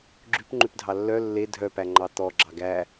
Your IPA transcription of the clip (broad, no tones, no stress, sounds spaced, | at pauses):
ɡ͡ǁ ʉ p ŋ͡ǃ ʉ p dʱ ɑ lː œ lː e dʱ œ p æ ŋ͡ǃ ɑ t̪ ɔ ɡ͡ǁ ɑ ɡ æ